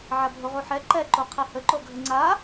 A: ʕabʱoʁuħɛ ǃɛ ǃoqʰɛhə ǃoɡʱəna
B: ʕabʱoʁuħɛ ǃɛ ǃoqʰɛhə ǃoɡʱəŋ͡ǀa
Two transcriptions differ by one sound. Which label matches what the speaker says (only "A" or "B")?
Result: B